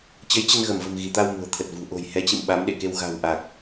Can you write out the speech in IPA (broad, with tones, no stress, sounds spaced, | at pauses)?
t͡ɕ ə˨˦ j t͡ɕ ə˧ n ɣ ə˧˩ m v ə̤˨˩ m ɣ i˧˩ t̪ a˧ w m ṳ˨˩ ə̯ t̪ʰ ə˨˩ t̚ v ṳ˨˩ ʔ o̤˨˩ j h ɛ˨˦ t͡ɕ ḭ˧˨ m ɓ a˨˦ m ɗ ḛ˧˨ k e˧ w ɣ a̤˨˩ w ʔ a˨˩ k̚